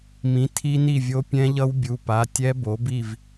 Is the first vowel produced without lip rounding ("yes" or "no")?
yes